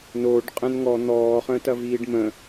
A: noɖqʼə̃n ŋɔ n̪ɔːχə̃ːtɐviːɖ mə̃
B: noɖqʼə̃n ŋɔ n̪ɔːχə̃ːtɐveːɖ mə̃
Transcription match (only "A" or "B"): A